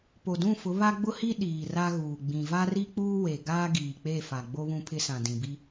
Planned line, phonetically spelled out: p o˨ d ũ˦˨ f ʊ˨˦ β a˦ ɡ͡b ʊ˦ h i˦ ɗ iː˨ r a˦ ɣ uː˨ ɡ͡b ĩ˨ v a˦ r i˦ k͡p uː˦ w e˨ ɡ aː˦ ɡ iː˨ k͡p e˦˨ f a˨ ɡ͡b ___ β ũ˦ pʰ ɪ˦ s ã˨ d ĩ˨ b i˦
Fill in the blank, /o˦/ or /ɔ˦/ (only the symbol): o˦